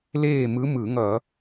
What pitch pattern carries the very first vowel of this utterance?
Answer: falling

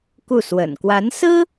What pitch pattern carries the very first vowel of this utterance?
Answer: falling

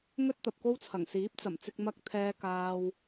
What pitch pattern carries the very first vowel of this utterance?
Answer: high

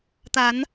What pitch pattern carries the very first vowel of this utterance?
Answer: rising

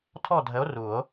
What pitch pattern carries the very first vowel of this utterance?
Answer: falling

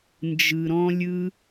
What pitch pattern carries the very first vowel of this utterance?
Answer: low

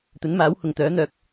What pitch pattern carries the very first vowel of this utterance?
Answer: rising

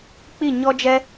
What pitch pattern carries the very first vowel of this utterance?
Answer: falling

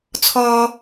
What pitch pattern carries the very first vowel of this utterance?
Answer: high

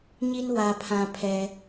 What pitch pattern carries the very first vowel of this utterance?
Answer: high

